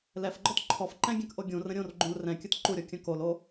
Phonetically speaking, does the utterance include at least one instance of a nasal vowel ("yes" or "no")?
yes